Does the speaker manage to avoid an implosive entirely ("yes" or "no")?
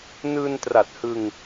yes